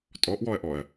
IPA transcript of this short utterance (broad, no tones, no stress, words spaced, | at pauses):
tʼɔʔwɔɐ̯ʔɔɐ̯